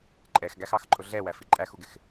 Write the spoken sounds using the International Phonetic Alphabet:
ǃʼɛxɡæxɑx ǃʼʊɮɛwæfi ǃʼæxuɡɪx

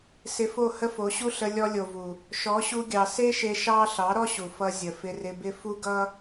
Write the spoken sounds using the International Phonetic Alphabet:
sɪ˧fo˦˨ hə˦fo˨˦ɕu˦ ɬə˧ lʲɔ˧lʲo˨vu˨ | ʃɔ˨˦ɕu˧ɡʲɑ˨ se˦ʃe˧ ʃɑ˦ ɬɑ˨˦ɾɔ˦ɕu˨fʌ˧ zʲə˨fɪ˧rɪ˧bɪ˦ fu˦ɡʌ˦

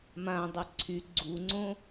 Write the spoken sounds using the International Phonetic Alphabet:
mãdˤɛ ǀʰy ɡ͡ǀuŋ͡ǀõ

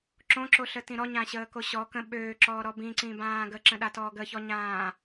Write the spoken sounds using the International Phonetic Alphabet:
ǁõǁoɬətĩ ɾɔɲãɕəːko ɕɔ kə̃ ɓøːǁɔːɾɔ bĩǀĩbãː ɡəǁə̃ɗatɔː ɡəçɔɲãː

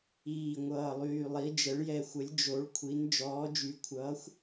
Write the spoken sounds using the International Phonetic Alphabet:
iː˨˩ŋʷʌː˨˩lˠyː˨˩lˠi˩˧ d͡ʒə˩˧ɭjɛ˨˩xʷə˩˧lʲ d͡ʒo˩˧ɭkʷʰi˩˧n d͡ʒɔː˩˧d͡ʒy˩˧ kʷʰʌː˩˧xʷ

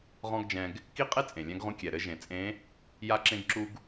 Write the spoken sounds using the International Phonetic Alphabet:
ʁɔ̃˥ɡd͡ʒɛ̃˧ɡ | ki˥qʼe˥ t͡sʼẽ˩lʲɛ̃˧˥ɡʁũ˧˥ kʲɛ˩ɾɘ˧˥ ʒẽ˩t͡sʼẽ˧˥ | ja˥ǁẽ˥ɡǁu˥ɡ

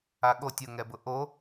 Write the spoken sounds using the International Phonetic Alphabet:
aɠotʲ ʊŋɛbʊ ʔo

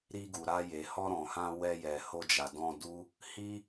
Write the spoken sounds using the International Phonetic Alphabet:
ɾi˧ɡu˨ɾa˧ je˨hɔ˧ɾɔ̃˨hã˧ wɛ˧jɛ˨ho˧d͡ʒa˨ dɔ̃˧du˦ | hi˦

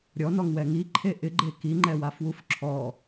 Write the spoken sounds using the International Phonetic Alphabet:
ɾʲɔnɔŋwɛ ŋiǃʰe ʔɪɡ͡ǃe kiŋ͡ǃɛwafwuf ǁʰɔ

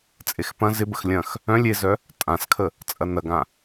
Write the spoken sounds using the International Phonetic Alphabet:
t͡sʼexpɐ̃ zɪbəx lʲɐ̃x | œ̃ lʲezœ | tʼãskʰə | t͡sʼɐnɐɡã

